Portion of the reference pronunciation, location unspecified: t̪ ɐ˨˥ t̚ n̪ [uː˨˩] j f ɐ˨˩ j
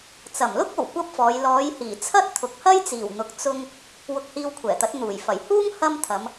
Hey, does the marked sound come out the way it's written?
yes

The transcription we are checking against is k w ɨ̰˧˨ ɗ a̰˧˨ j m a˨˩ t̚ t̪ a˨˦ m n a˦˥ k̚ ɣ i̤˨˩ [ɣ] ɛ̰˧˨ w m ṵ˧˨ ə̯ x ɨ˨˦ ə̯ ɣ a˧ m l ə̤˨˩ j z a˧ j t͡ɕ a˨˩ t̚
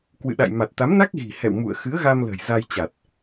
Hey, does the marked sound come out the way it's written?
no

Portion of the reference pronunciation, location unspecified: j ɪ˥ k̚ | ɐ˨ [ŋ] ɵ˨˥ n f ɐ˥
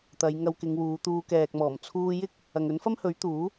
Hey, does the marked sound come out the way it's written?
yes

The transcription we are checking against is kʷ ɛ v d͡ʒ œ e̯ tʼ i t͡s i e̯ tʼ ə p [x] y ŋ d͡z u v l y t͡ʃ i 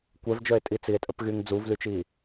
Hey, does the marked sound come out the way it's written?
no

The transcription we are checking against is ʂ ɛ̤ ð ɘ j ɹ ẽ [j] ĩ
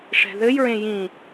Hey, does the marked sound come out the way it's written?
yes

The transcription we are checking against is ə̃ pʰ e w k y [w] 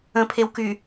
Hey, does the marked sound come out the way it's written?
no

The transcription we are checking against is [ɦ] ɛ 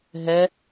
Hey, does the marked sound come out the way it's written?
yes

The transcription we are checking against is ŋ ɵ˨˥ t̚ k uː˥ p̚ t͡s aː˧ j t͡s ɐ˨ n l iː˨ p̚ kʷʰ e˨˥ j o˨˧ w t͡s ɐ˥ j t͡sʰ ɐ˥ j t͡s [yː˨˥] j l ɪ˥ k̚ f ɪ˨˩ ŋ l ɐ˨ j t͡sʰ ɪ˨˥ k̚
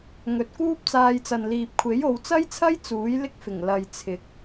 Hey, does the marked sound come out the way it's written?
no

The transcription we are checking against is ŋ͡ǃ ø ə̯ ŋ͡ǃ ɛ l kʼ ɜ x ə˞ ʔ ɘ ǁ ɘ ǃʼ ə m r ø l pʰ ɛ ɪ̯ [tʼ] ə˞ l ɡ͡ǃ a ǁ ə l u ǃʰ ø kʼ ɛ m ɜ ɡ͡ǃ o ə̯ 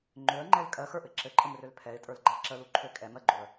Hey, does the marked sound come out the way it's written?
yes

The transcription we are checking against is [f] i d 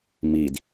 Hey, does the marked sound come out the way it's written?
no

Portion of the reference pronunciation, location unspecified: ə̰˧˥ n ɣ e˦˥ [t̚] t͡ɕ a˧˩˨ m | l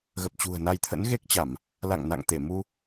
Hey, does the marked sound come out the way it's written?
no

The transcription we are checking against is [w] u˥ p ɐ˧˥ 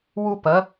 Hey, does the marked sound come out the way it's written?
yes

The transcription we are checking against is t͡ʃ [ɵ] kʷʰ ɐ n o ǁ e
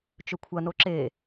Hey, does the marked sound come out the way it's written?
yes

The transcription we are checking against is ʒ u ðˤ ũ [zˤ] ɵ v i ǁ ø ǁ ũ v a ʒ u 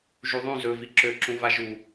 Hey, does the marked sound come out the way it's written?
no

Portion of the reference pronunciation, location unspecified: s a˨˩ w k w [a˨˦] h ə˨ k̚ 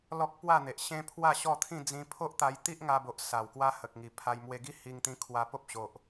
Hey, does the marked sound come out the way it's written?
no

